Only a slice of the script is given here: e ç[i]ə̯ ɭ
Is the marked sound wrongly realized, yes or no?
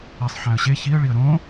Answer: no